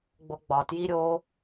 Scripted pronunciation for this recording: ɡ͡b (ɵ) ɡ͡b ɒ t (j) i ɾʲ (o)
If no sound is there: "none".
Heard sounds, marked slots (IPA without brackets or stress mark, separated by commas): o, j, o